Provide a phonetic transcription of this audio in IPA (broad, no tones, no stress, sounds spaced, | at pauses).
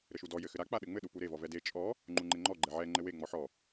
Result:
ɾ ɘ ʃ u d ɔ j ɘ x ɘ ɾ a k͡p a ɗ ɘ ŋ͡m ɘ ɗ u p u ɾ e v ɔ v ɛ d e t͡ʃʼ ɔ | ŋ͡ǃ u ŋ͡ǃ e ŋ͡ǃ ɔ ɡ͡ǃ ɛ ʕ ɛ ŋ͡ǃ ɘ w e ŋ͡m ɔ ħ ɔ